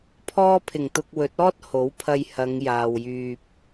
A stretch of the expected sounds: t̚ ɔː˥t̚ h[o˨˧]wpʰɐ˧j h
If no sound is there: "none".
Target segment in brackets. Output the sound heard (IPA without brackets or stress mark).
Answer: o˨˥